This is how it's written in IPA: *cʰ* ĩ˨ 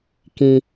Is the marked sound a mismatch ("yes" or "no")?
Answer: yes